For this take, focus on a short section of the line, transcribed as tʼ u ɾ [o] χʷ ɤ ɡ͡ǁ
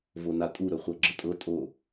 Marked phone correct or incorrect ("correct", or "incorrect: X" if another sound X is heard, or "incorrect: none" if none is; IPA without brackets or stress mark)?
incorrect: ɵ